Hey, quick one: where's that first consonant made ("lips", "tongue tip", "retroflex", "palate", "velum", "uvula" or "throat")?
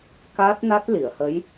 velum